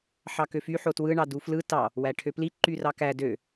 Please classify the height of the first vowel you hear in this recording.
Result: low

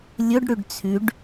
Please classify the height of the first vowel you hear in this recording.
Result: mid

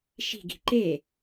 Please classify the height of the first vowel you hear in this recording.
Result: high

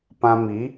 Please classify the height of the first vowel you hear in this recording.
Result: low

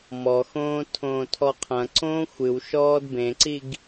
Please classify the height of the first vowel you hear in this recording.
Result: mid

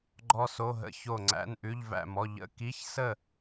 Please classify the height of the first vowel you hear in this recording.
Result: mid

